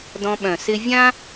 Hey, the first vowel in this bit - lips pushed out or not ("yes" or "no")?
yes